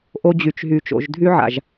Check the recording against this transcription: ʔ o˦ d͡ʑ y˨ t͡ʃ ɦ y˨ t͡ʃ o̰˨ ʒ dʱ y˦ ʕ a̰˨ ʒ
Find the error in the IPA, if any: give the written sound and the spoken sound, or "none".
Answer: none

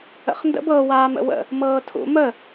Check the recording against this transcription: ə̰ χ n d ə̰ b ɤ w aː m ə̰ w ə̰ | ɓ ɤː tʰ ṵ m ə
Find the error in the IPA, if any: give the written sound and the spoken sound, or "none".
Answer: ɓ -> m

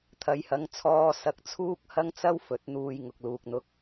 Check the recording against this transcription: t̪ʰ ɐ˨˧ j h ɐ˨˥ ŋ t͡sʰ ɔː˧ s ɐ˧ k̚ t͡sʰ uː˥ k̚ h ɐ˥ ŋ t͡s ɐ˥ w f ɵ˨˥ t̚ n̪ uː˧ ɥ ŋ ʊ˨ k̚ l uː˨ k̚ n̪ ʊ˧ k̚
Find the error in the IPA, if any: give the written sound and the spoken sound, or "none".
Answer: ɥ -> j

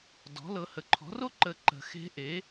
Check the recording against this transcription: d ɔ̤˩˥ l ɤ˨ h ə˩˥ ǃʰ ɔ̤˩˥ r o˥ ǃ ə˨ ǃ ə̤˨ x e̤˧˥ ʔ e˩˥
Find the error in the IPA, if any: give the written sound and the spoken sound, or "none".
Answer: none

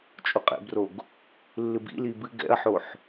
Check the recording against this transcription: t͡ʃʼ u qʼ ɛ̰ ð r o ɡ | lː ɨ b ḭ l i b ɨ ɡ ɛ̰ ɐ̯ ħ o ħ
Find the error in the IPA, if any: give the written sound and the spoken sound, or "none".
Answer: ð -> b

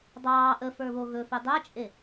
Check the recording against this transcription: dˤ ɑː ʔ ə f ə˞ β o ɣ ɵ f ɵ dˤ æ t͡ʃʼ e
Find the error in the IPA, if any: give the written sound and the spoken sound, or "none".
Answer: none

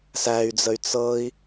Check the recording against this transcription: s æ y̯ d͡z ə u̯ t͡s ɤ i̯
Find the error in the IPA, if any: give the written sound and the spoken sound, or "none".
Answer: u̯ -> y̯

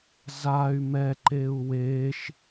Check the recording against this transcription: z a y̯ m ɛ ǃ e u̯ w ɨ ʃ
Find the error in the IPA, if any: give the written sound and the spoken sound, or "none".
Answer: ɨ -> e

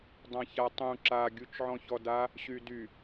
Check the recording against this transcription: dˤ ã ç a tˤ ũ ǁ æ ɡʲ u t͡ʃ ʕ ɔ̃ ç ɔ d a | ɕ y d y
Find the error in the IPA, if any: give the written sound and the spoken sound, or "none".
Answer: æ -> a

